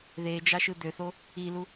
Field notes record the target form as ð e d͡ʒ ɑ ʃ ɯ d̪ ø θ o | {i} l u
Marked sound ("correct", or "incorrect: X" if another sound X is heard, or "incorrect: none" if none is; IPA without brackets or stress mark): correct